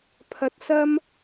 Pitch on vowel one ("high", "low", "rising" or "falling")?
high